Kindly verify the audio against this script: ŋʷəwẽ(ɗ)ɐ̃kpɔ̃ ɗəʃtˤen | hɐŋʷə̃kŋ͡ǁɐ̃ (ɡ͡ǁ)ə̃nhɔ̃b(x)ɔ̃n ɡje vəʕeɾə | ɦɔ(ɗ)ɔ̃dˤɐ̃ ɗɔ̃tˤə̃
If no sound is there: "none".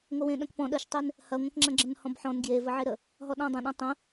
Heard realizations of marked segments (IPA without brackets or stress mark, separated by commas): ɗ, ɡ͡ǁ, ħ, ɗ